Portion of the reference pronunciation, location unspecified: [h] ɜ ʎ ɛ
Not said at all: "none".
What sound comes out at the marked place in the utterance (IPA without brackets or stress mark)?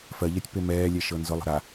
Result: f